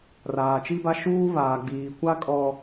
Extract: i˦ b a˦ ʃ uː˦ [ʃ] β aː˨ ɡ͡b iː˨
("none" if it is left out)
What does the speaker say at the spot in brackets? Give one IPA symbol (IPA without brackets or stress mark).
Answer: none